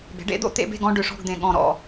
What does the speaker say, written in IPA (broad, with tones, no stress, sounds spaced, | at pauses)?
b e̤˩˥ ɖ ḛ˩˥ d̪ o̰˩˥ t̪ ḛ˧ b e̤˥˨ ɡ ɔ̃˧ ɖ ʏ˨˩ ʂ ɔ̤˥˨ ɡ d̪ ẽ˨˩ ɠ ɔ̃˨˩ ɾ ɔ̰˨˩